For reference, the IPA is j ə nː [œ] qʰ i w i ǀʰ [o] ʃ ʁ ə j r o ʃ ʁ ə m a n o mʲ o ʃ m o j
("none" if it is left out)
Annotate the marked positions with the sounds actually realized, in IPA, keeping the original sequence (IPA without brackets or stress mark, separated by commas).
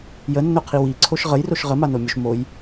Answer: ɵ, o